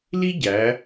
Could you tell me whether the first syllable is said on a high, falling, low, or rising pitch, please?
high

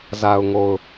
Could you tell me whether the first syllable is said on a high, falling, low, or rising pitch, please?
low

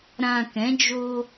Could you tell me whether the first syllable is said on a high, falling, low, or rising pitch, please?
low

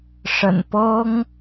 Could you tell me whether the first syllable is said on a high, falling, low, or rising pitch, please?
low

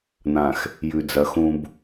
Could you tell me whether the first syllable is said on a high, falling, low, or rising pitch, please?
low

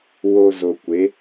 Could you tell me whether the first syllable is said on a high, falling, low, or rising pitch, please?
low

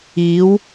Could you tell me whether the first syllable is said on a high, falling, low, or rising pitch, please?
rising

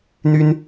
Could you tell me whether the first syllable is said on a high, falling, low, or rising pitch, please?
high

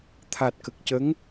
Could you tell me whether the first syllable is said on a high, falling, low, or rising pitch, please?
low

